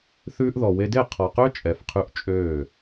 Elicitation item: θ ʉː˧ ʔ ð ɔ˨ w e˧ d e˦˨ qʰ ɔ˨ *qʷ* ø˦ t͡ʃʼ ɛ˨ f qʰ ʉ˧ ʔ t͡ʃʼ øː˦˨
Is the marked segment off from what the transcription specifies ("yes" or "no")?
yes